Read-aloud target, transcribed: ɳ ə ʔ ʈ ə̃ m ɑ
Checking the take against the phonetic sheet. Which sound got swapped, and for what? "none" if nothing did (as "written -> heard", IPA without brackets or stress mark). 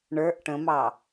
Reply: ə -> ə˞